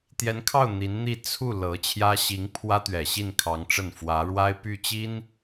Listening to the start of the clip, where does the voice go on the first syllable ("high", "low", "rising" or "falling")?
rising